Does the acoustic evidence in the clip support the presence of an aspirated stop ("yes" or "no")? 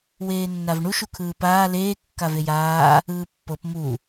yes